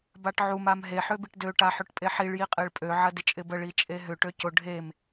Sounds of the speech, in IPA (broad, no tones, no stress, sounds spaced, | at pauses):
b a ʈ ʕ u m a m ɦ e ħ ø b i ʈ d ø ʈ a ħ ø ʈ pʼ e ħ i ɭ j i qʼ e ɭ pʼ ø ʕ ɐ d ɪ t͡ʃʼ ɪ b ə ɭ i t͡ʃʼ e ɦ ʏ ʈ ø c ʊ ɖʱ e m